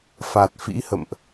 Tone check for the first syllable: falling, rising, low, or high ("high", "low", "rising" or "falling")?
low